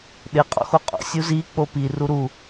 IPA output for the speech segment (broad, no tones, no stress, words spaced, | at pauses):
ɗɪ qʼɔ̰xoqʼo̰ sʲuzi k͡popi ruɾu